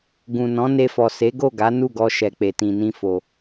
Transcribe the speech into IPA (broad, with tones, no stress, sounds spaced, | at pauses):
ɡ ũ˨ n ɔ̃˨˦ n e˧ f ɔ˨ s e˨˦ ɡ o˦˨ ɡ a˨˦ n u˦˨ ɡ ɔ˧ ʃ ɛ˨ k͡p e˨ t ĩ˨ n ĩ˧ f o˨